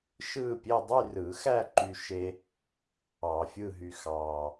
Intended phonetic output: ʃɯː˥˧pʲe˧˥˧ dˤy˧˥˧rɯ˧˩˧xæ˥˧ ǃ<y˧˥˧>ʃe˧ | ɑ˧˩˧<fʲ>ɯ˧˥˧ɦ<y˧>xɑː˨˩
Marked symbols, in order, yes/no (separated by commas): no, yes, yes